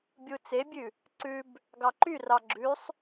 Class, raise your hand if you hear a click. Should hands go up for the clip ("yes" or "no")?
yes